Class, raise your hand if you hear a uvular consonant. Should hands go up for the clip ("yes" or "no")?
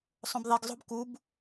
no